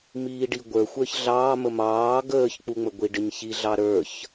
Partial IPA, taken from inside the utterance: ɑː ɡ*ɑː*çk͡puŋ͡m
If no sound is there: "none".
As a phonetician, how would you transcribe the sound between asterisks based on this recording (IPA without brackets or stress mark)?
əː